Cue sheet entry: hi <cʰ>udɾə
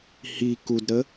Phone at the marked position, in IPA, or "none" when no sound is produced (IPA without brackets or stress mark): k